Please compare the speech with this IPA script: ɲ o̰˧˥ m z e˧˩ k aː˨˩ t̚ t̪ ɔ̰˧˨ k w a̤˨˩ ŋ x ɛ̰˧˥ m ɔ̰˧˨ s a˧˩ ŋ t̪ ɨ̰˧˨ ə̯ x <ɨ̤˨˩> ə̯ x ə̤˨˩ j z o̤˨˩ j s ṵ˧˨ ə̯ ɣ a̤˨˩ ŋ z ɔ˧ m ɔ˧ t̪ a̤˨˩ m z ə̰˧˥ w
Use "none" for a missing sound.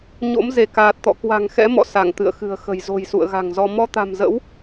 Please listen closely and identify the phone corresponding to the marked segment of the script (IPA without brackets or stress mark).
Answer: ɨ̤˨˩